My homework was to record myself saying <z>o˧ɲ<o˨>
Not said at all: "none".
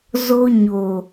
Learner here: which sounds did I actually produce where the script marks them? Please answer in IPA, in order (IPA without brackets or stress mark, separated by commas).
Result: z, o˨